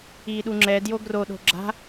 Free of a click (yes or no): no